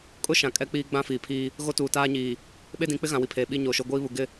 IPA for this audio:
kʼʊ˦ʃã˨ kʼɛ˦k͡piː˦ɡ͡bã˦ fiː˨pʰiː˦ | ɣo˦tuː˨taː˦ɲiː˨ | ɓe˦dĩ˨˦k͡pɪ˦ɣã˨ wi˨pʰeː˨ɓi˦ ɲoː˨ʃo˦ ɡʷiː˦βu˨ɡɪ˦˨

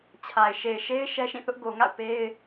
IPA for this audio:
t͡ɕʰa˨ɪ̯ ʃe˨ɪ̯ʃe˦ɪ̯ ʃɛ˦ʃĩ˦˨θʊ˦ʔ ɡo˨ŋa̰˦˨ʊ̯ pe˦ɪ̯

